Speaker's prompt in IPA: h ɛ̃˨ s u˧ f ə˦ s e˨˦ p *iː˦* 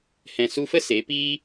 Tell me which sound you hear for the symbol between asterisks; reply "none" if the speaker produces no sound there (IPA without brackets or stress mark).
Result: iː˦